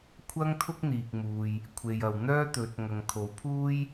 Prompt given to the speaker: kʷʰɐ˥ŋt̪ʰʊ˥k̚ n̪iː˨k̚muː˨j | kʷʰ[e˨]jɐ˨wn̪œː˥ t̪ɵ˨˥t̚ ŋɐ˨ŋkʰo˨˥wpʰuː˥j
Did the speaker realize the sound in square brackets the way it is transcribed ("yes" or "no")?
yes